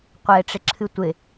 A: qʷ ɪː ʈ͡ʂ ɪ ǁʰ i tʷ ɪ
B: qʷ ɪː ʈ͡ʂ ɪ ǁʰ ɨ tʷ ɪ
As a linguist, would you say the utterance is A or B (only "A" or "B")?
B